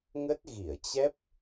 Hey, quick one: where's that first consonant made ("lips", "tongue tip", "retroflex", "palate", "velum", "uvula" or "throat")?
velum